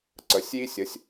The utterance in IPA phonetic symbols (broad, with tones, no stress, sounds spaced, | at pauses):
ǀ ə˩˥ sʲ j i˥ sʲ ə˩˥ sʲ